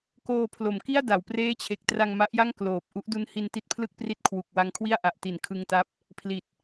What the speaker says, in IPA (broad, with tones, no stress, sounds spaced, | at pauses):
k oː˧ pʰ l o˩˦ m k i˥˩ a̯ d a˩˦ w p r eː˦˥ t͡ɕʰ e˨˩ k̚ t r a˧ ŋ m a˦˥ ʔ j a˥˩ ŋ k l oː˨˩ p̚ ʔ u˦˥ ʔ d u˦˥ n h i˧ n t i˦˥ t̚ pʰ l ɯ˥˩ k̚ p r i˦˥ t̚ kʰ w u˨˩ k̚ w a˧ ŋ kʰ w i˥˩ a̯ ʔ a˨˩ ʔ t i˨˩ n kʰ ɯ˧ ŋ t a˦˥ p̚ | pʰ l i˨˩ t̚